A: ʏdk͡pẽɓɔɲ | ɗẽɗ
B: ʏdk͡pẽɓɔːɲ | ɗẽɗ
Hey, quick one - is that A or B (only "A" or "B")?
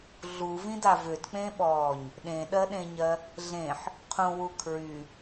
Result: B